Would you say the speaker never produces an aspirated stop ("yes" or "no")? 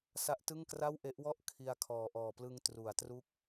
no